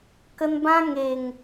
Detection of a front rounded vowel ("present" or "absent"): absent